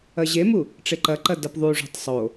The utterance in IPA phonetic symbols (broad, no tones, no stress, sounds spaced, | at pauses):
ɐ ʑ e m u | ʈ͡ʂ e ǃ ɐ ǃ ɐ d ɐ p ðˤ u ʐ ṳ tˤ sˤ o